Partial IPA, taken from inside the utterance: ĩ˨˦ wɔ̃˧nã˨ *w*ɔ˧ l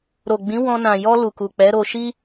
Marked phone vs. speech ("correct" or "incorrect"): incorrect